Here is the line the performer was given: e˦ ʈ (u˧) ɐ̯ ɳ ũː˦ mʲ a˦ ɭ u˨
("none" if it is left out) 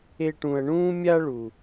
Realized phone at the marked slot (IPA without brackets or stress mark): ũ˧